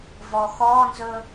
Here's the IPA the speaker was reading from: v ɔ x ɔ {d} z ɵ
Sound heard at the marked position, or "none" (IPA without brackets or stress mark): n